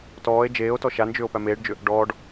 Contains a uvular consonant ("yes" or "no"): no